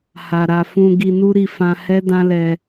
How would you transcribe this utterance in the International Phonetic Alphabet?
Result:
h a˨ ɾ a˨ f ũ˧ ɡ i˧ n u˦ ɾ i˧ f ã˧ h ɛ˦ d ã˦ l ɛ˧

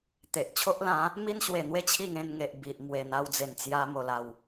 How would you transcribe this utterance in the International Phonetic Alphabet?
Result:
t̪ e˨ ʔ t͡ɕʰ o˦ ʔ l ã˨˦ | m i˦ n ɕ w e˨˩ n̪ w e˥˧ t͡ɕʰ i˥˧ ŋ ẽ˧ n ŋ e˨ ʔ b i˨ ʔ m w e˨˩ n̪ a˧ w d͡z e˨˩ n t͡s j a˧ m o˨˩ l a˨˩ w

